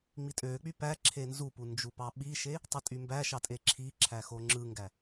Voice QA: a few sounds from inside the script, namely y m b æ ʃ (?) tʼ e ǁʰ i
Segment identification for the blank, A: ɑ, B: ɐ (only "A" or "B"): A